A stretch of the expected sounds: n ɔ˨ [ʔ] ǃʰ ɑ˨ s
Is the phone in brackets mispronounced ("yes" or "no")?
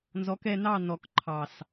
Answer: yes